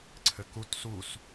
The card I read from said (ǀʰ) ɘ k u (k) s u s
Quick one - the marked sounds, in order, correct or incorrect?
correct, incorrect

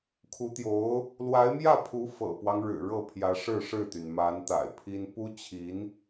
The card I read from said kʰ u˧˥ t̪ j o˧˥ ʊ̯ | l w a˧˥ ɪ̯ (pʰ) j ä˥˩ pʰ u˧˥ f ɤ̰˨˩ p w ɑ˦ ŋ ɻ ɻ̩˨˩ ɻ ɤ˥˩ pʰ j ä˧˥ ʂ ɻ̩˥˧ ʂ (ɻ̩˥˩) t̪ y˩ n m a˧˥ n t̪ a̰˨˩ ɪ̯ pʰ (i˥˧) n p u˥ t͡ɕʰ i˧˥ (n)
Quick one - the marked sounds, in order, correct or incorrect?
incorrect, correct, incorrect, correct

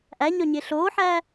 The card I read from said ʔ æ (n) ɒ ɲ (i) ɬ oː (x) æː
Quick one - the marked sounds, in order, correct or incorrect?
incorrect, incorrect, incorrect

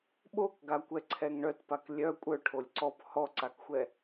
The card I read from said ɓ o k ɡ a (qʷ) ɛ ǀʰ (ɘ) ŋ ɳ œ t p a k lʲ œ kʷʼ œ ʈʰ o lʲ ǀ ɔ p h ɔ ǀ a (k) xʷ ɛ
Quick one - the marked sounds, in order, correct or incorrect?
incorrect, incorrect, correct

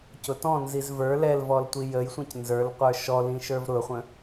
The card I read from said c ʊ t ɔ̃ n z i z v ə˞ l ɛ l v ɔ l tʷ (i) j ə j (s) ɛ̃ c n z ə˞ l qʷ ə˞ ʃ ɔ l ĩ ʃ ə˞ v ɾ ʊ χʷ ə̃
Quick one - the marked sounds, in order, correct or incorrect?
correct, incorrect

